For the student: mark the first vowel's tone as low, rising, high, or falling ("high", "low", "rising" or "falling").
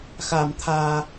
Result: low